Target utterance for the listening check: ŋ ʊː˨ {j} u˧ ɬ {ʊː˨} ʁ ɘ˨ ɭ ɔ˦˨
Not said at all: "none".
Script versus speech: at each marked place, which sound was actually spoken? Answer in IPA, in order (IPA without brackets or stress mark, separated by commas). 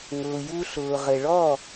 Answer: j, ʊː˨